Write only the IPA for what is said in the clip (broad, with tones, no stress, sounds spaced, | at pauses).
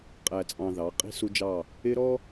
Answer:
qʼ æ˨ t͡sʼ ɑ̃˨ ð ɑ˨˦ qʼ i̤˦ s u˦ d͡ʒ ɑ˦˨ | ɪ˦ ɾ ɔ˦